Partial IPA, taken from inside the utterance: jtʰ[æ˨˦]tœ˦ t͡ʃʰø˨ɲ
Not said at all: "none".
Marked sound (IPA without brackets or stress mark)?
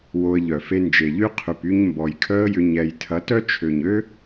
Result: ɐ˨˦